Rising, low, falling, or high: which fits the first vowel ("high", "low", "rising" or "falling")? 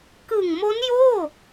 low